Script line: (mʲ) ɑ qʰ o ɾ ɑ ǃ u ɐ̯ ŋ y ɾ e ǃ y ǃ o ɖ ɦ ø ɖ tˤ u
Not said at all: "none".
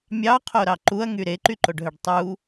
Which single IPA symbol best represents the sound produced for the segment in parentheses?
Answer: mʲ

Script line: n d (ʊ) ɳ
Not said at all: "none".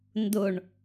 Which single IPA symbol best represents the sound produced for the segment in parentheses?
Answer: ʊ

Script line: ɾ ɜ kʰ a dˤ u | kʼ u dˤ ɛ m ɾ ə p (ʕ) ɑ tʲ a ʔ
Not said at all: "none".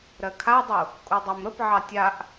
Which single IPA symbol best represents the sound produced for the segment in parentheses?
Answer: ʕ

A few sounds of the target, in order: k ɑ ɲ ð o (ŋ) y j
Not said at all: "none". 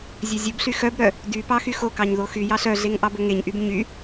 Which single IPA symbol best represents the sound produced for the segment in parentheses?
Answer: x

